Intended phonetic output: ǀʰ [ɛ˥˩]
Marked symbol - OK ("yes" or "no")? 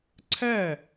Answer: yes